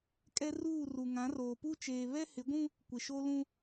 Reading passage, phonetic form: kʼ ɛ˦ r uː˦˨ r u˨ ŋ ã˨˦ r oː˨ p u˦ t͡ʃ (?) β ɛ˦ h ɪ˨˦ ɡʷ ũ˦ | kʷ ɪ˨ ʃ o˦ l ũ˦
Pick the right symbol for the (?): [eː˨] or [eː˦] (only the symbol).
eː˨